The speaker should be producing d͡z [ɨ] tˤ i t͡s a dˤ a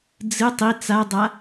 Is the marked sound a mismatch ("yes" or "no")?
no